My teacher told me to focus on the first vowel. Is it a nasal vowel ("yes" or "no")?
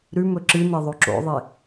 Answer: no